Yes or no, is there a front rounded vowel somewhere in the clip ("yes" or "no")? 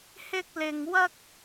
no